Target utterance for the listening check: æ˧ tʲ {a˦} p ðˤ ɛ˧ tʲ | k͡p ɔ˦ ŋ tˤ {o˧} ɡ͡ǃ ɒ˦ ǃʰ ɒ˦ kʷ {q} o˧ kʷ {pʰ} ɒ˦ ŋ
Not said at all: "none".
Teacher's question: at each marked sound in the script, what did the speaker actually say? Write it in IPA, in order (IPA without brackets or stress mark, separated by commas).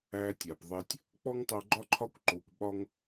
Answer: a˨, o˧, ǃ, ɓ